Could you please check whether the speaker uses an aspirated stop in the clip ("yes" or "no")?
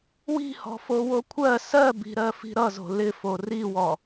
yes